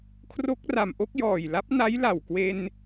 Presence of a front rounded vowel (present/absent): absent